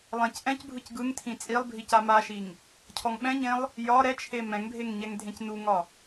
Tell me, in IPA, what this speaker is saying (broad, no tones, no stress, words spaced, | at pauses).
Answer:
lˠɛ̃cʔɛ̃cbʱɯc ɡɯŋtʰĩ t͡sʼilˠbʱi camaʃiŋ | cʰɔŋɓɛ̃ɲẽlˠ | jɒ ɾɛt͡ʃʰe mɛ̃ŋbʱeŋ ɲɛŋdʱẽcnuŋɒ